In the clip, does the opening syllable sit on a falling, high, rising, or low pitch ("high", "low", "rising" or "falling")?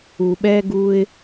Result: low